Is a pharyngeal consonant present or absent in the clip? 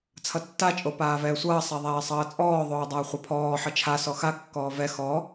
present